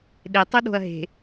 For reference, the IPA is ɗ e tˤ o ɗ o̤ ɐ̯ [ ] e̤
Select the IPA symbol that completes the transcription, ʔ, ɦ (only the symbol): ɦ